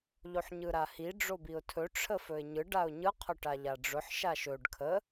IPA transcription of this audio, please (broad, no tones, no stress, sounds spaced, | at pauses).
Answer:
ʎ o ħ ɲ ɯ ɾ a h i ɖ͡ʐ o b i ʊ̯ tʰ ɵ ʈ͡ʂʰ ə f ɵ ɪ̯ ɲ ɯ ɖ a ʊ̯ ɲ ɯ qʰ ʊ ʈ a ʎ a ɖ͡ʐ ʊ ħ ʃ a ʃ ɵ ɖ kʰ ə